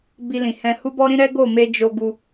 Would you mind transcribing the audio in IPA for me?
bi˧lĩ˨hɛ̃˧ hu˦bɔ˦ɾĩ˦ ɾɛ˦ ɡo˦˨me˧ d͡ʒo˧ ɡu˧

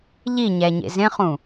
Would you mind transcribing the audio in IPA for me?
ʎiɲæɲḛ zẽχũ

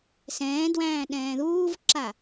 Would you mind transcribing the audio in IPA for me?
sɛ̃ːdwæ̃ː ɗɛ̃ːðuːvǁa

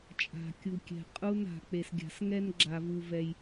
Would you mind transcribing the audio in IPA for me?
t͡ʃʼa̤˩kʲu˩kʲɛ̤˩ qʼu˧na̤˩ k͡pe˩sɡʲa̤˩sŋɛ˧n ɡ͡ǁa˩vu˩vɛ˩j

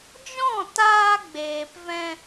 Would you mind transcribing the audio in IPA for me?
d͡ʒɔ̃˦˨taː˧ɡ͡beː˨pvɛ̃˧

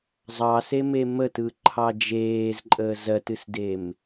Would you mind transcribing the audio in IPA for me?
zˤɑseme mətɯǃʰɑ d͡ʒeːzǃʼəːz ɜtɨsdem

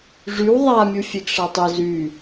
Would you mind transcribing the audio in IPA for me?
ʐyw ðˤamʲufʲeɡ ʂatˤɘ zy

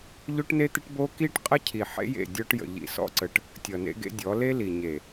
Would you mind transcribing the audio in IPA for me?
ʎo˦ʈne˦t̪ə˦ʈbo˦ ki˦ʈqʼə˦cʰi˨ ħḛ˦jḛ˦˨ dʲɔ˦ʈjə̰˨ʎḭ˨sɔ̰˦ ǀə˨ʈ | tʲʌ˨nḛ˦ɡḛ˦dʲɔ˨˦ le˦li˨ ɲe˨

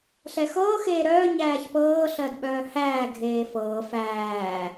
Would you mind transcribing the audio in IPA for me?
ɬɛxɤːxeː ɾœː ɲæːçpɤː ɬɜdɓœːhæː ɡʱeːfɤː fæː

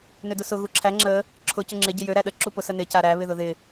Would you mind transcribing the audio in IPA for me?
nødʊsʊ ɣuǁʰæ ŋ͡ǁə | ǁʰʊ cʊŋ͡ǁɪ ɟɪjø ɾæɗə ǁupʊ sənɪ caɾæ βɪðʊðɪ

